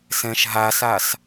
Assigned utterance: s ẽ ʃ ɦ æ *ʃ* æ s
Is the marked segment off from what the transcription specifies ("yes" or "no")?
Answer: yes